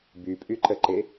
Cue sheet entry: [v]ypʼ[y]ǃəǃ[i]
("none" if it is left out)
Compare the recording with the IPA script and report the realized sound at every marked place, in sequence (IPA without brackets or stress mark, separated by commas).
b, y, e